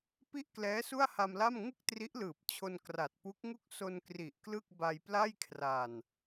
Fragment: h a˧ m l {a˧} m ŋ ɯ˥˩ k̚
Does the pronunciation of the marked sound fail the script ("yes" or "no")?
yes